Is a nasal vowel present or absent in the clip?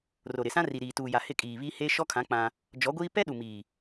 present